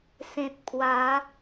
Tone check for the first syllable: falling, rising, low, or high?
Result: low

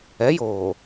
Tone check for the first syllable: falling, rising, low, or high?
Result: rising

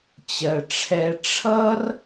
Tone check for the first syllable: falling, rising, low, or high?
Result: low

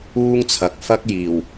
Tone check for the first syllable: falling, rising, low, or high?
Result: high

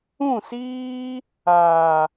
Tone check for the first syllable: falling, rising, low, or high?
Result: falling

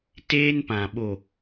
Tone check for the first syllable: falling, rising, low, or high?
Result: high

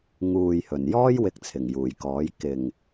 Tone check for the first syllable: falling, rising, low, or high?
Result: low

